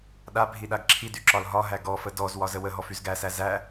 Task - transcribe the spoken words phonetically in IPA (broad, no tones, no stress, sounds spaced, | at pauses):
ɗ a bʱ i ɗ a ɡ ǁʰ i d y ǁ ɒ l ɦ ɒ ɦ æ ɡ ɔ f ə d ɔ z w ɒ z ə w ə ɦ ɔ f y z ɡ æ s æ z æ